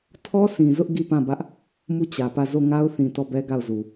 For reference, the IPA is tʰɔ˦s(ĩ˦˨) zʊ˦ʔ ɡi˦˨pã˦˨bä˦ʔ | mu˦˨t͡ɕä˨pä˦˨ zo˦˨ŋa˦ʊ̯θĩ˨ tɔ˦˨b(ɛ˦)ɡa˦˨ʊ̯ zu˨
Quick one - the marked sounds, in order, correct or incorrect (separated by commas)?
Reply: incorrect, correct